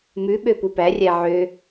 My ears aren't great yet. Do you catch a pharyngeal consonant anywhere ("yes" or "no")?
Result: yes